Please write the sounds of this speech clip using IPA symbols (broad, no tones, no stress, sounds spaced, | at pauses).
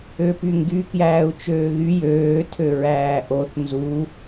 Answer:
ø p y ŋ ɡ y k j æː u̯ t͡ʃ øː ɣ y j øː tʰ ø ɹ æː ʔ o θ n z u